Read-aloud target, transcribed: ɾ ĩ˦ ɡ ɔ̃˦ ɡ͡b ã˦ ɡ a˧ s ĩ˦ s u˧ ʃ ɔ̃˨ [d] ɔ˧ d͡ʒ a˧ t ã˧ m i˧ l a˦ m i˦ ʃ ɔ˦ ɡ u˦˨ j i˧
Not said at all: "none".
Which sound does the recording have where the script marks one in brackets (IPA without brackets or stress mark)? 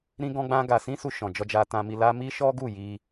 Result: d͡ʒ